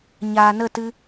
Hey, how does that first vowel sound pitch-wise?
low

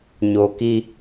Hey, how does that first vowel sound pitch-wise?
low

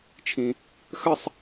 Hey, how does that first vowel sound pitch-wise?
low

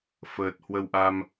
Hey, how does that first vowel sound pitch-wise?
low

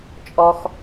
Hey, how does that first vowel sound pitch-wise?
high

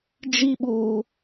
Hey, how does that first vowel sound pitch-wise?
high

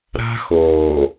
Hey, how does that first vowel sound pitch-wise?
high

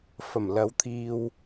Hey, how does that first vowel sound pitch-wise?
low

